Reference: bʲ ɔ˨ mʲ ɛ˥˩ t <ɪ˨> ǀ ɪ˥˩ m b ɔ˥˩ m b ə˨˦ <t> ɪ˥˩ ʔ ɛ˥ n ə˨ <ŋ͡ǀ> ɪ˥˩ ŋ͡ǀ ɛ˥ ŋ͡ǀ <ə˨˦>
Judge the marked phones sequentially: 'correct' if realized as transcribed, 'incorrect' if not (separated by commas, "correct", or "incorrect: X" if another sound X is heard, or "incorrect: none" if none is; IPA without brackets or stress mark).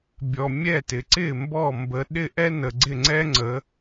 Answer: correct, incorrect: ɗ, incorrect: ɡ͡ǀ, correct